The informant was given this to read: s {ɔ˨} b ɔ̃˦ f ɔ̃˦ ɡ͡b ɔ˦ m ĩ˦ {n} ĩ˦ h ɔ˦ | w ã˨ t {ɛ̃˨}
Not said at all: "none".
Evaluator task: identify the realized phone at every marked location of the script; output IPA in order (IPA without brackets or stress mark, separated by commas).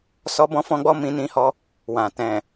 ɔ˦, n, ɛ̃˨